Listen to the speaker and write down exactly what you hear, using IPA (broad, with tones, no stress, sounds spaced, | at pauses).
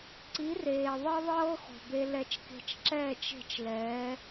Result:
ǀ i˩˥ r eː˩ ðˤ ɤ˥ ðˤ ɤː˥ x o̤˩ b e˧ l ɛ˧ t͡ʃ k e̤˧ t͡ʃ ǁ ɛː˥˩ t͡ʃ e̤˥˩ t͡ʃ l ɛː˩˥